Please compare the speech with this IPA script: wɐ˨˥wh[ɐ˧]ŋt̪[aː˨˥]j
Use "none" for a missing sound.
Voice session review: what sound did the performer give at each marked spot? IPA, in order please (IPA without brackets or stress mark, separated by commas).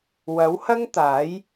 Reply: ɐ˥, aː˨˥